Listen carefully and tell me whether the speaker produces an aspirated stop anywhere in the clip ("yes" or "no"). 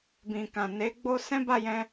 no